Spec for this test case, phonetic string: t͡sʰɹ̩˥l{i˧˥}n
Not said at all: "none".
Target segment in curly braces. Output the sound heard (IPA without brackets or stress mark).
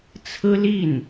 i˥˩